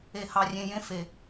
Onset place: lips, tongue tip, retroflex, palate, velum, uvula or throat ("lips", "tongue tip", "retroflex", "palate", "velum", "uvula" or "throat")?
throat